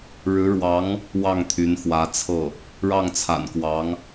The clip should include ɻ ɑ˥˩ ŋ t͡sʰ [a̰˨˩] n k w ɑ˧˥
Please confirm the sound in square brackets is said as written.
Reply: yes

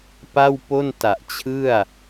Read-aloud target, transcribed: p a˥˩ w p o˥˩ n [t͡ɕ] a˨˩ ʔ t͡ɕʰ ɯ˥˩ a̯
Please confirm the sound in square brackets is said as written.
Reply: no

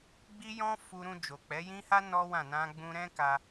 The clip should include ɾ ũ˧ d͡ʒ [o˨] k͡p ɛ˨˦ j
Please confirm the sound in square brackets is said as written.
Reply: yes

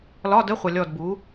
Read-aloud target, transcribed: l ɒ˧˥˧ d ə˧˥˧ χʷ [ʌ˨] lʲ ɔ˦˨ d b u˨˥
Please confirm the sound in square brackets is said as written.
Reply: yes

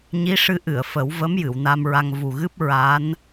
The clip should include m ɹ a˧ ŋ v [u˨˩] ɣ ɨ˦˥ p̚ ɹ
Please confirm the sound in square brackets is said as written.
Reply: yes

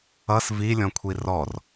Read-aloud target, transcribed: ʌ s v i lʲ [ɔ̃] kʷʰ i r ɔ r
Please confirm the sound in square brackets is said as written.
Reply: yes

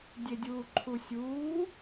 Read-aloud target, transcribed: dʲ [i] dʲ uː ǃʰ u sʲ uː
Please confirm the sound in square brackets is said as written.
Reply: no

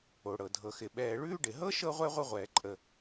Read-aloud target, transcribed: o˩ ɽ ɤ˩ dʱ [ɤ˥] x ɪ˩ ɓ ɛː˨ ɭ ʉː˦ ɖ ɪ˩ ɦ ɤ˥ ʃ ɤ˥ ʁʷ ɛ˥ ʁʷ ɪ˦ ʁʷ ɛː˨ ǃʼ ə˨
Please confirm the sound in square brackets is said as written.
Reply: no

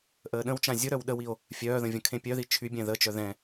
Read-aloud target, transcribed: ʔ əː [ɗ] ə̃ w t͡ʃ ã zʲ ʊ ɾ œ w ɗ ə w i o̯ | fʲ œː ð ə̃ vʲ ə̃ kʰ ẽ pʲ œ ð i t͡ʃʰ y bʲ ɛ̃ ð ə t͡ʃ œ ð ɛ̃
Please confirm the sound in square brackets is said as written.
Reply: yes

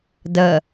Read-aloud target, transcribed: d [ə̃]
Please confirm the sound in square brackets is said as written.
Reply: no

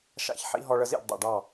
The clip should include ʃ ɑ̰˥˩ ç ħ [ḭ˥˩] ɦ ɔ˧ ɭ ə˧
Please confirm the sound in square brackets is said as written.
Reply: no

